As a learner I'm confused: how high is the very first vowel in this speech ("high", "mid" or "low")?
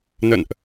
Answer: mid